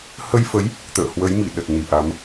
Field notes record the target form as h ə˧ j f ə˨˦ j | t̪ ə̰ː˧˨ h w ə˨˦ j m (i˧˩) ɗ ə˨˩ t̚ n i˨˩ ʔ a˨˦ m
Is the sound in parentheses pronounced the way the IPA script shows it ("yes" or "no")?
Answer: yes